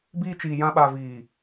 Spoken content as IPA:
b iː˧ t͡ʃ iː˨ j ã˧ ɓ aː˨ v iː˨

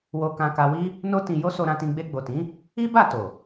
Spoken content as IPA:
w o˧ k ã˧ k a˧ w i˦ | n o˦ t ĩ˧ j o˦ s o˧ ɾ ã˧ t ĩ˧ ɡ͡b e˧ ɡ͡b o˨ t ĩ˨˦ | i˦ b a˦˨ t o˨

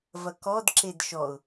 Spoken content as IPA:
v ɐ k ɔ d ǁ e d ʃ ɔ ʊ̯

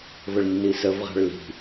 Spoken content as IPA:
v ə ɭ nː i s ə v ʁ a̤ ɭ l i̤

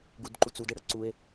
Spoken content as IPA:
ɡ u d ǃ u t͡s u d ɘ ɽ ʌ ǀ u e̯

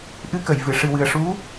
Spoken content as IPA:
ʔ ɨ˧ k ə˨˩˨ j v ɨ˨˩˨ ʂ ɨ˨˩ w ɨ˨˩ ə̯ ʂ u˧˥

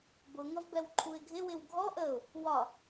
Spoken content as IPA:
b ʊ ŋ ʌ v b ɛ w ǃʰ u ɪ̯ ɡʱ ɪ w ɪ w ɡʱ ɔ ʔ ə ʊ̯ | w ɒ

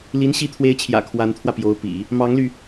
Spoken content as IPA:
l i˧˥ n ɕ i˧˥ t̪ʰ w e˧˥ ɪ̯ t͡ɕʰ j ä̰˨˩ kʰ w a˧˥ n t̪ʰ w ä˧ p j o˧˥ ʊ̯ p ḭ˨˩˦ | m ɑ˧˥ ŋ l y˧

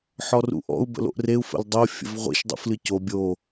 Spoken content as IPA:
ħ ɔ r ṵ ʔ ɔ̰ u̯ b ə̰ l o̰ ʔ r e u̯ f ə̰ l dˤ o fʲ ə̰ v ʁʷ ḭ ʃ dˤ ṵ f l ɨ c o bʲ o

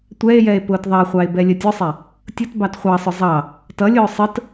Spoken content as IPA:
tʷ ɛ e̯ j ɛ e̯ p ʊː t ðˤ ɑ χʷ ɑ e̯ b ɛ lʲ ə tʲ ʊ sˤ ɛ | tʲ ʊ t b ɑ t χʷ ɑ sˤ ʊ zˤ ɑ | t ʌ lʲ ʊː sˤ ə t

